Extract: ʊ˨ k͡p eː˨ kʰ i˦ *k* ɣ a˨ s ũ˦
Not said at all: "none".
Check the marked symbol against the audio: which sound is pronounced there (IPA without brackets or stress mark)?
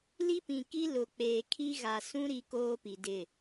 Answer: none